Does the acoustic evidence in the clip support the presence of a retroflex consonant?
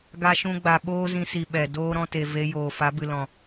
no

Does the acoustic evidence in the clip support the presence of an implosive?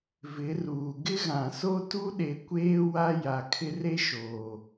yes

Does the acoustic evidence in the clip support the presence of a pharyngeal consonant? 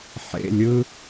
yes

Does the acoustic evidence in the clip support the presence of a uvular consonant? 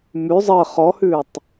yes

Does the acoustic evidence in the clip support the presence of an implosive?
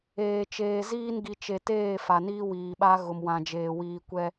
yes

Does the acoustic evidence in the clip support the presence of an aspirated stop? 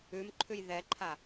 yes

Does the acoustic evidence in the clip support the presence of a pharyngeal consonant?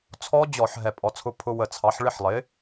yes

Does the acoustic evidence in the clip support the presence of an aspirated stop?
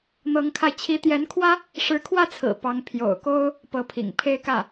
yes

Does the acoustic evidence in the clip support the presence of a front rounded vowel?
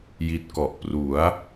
no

